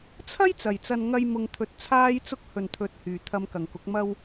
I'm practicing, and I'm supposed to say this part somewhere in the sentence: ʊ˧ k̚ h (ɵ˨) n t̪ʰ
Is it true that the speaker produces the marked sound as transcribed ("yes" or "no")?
yes